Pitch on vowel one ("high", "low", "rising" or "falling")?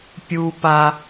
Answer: high